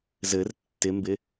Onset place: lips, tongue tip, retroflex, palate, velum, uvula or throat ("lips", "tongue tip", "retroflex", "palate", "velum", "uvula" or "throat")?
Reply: tongue tip